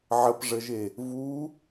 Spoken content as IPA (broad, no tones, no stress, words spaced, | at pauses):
ʕəpʐəʒe | vu